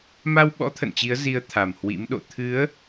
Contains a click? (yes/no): no